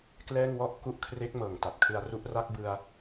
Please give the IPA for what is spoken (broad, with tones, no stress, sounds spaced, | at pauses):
k l ɛː˥˩ ŋ w ɔ˥˩ ʔ k u˦˥ ʔ kʰ r e˦˥ k̚ m ɤː˨˩ ŋ t a˨˩ t̚ kʰ ɯ˧ a̯ r u˥˩ ʔ r a˥˩ k̚ b ɯ˧ a̯